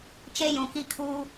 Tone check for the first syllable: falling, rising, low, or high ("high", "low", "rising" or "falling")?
high